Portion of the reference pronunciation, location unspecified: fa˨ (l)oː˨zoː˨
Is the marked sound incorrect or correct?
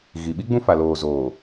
correct